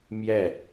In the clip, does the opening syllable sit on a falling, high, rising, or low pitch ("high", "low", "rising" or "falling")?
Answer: falling